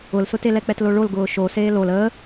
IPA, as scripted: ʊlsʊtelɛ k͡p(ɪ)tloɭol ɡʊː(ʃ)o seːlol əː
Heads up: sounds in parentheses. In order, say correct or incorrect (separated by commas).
incorrect, correct